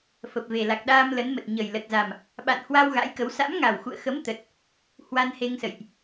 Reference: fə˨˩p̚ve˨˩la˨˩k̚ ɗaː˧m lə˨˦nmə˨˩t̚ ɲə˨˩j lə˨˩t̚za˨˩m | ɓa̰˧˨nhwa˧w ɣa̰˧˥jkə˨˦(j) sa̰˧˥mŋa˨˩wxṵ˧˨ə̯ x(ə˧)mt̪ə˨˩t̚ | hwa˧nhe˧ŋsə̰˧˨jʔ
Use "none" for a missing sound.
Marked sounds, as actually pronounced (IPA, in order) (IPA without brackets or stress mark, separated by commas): w, ə˨˦